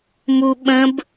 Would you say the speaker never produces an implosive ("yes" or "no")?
no